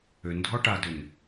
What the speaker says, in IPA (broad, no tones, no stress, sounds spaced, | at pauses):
ø n dʱ ɔ ʈ a d ø n